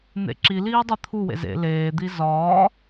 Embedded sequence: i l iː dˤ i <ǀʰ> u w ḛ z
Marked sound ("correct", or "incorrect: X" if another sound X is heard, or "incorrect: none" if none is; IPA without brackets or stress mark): incorrect: t̪ʰ